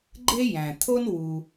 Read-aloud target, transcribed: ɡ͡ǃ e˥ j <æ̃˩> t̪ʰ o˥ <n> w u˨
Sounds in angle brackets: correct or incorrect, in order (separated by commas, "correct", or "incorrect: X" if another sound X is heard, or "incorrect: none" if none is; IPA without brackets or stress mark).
correct, correct